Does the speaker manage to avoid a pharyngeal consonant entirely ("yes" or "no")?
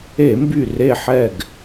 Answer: no